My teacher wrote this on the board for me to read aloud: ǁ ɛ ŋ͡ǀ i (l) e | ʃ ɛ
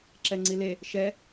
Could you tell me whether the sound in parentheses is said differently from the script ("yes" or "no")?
no